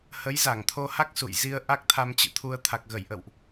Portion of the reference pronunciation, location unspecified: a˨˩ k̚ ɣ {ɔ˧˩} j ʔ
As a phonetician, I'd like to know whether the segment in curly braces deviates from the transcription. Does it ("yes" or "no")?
yes